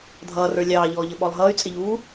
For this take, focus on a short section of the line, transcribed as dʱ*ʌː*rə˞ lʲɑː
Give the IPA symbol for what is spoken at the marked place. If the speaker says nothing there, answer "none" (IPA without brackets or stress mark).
ʌː